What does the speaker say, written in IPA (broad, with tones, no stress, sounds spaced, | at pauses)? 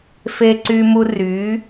f e˧ ǀ y˧ m u˧ r y˩˧